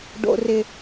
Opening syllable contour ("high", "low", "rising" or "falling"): low